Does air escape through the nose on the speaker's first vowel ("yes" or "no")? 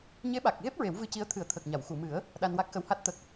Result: no